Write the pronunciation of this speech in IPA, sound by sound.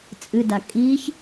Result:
t͡sʼ ɨ d a kʼ i ç

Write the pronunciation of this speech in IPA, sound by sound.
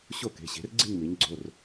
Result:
ɕ o˦˨ k e̤˩˧˩ ɕ e̤˩˧ r ɡ͡ǀ i̤˦˨ ɲ m i˩˧ ɲ ɡ͡ǀ o˩˧˩ r

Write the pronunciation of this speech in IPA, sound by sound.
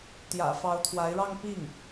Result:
t̪ j ä̰˨˩ f ɑ˧˥ ʊ̯ t̪ʰ w a˧˥ ɪ̯ ɻ ɑ˥˧ ŋ p i˥˩ ŋ

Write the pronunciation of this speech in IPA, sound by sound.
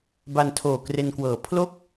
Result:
b a˧ n tʰ oː˨˩ k r e˧ n k w ɤː˨˩ pʰ l o˥˩ k̚

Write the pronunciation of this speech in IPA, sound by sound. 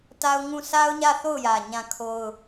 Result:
t a˦ ʊ̯ ŋ ũ˦˨ s a˦ ʊ̯ ɲ ä˦˨ θ o˦˨ ʊ̯ j ä˨ ɲ ã˦˨ kʰ o˦ ʊ̯

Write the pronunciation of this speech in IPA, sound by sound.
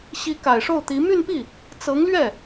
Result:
ɕ i˧˥ k a˨˩ ɪ̯ ʂ o˥˩ ʊ̯ t̪ i˧˥ m y˥˧ n p i˥˩ | t͡s ɤ˧˥ ŋ l ɥ ɛ˥˩

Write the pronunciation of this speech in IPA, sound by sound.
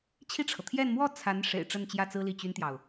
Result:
t͡ɕʰ i˥˩ ʈ͡ʂʰ ɤ˩ t̪ʰ j ɛ˥˧ n m w ɔ˥˩ t͡sʰ a˧˥ n ʂ ḛ˨˩ ɪ̯ ʈ͡ʂ ə˥˧ n t͡ɕ j ä˥˩ t͡s ɹ̩˥ l i˥˩ t͡ɕ y˥ n t̪ j ɑ˨ ʊ̯

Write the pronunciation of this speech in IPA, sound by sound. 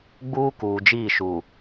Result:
ɡ͡b uː˦ k uː˨ d͡ʒ iː˦˨ ʃ u˨

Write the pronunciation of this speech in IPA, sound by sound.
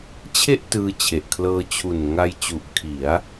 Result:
t͡ɕʰ e˥˩ ʔ t ɯː˧ t͡ɕʰ e˨˩ ʔ kʰ l ɤː˧ t͡ɕʰ u˨˩ n ŋ a˧ j t͡ɕ u˨˩ ʔ kʰ i˩˦ a̯

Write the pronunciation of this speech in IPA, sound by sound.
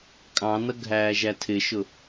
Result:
kʼ ɑ̃ n ʌ ɡʱ æː ʒ æ tʰ ɪ ʃ ʊ

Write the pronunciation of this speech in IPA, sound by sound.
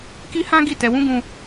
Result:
k i˦ h ã˦ ɡ i˦˨ t ɛ˧ w ũ˦ ɡ ũ˦

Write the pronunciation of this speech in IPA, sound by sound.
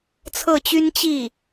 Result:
t͡sʰ ɤ˥˩ t͡ɕ y˥ n t͡ɕ i˥˩

